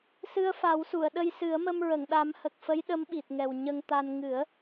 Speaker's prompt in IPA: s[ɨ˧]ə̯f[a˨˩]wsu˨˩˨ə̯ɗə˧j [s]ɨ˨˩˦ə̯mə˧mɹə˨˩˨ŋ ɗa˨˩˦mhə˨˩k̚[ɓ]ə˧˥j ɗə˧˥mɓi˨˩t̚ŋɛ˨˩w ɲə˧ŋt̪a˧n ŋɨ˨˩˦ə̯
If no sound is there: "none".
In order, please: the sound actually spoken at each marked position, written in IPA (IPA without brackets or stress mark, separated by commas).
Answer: ɨ˧, a˨˩˦, s, f